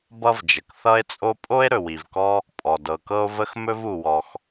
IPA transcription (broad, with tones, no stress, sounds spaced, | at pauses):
b ʌ˥ v d͡ʒ ə˩ k θ ʌ˥ e̯ t͡sʼ o˥ pʼ o˥ e̯ ɾ ɵ˩ w i˩ v k ɔ˥ | pʼ ɔ˩ d ɤ˩ k ɤ˥ o̯ v ə˥ x m ɵ˥ v u˩ w ɔ˩ x